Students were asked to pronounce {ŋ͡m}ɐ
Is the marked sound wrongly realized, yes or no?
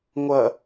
yes